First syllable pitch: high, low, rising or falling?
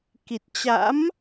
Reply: low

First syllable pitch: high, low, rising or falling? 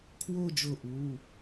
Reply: falling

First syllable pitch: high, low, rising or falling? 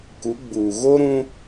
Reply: rising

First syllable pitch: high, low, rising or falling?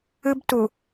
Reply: high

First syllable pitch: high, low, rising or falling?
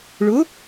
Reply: rising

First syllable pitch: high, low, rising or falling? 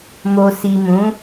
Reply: low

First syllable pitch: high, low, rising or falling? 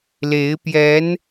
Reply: rising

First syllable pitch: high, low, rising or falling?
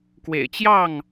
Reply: low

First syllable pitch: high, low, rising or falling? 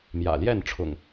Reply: low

